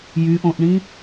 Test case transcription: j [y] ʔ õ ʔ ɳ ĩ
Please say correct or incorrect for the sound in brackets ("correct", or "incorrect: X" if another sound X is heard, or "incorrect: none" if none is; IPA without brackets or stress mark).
correct